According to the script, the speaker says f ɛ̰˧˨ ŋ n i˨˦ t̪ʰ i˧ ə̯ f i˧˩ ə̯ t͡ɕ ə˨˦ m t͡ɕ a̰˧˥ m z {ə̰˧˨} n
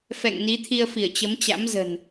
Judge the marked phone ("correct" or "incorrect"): incorrect